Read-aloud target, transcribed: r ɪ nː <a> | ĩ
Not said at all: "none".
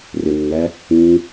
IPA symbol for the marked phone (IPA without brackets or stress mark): æ